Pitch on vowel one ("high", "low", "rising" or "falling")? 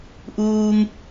high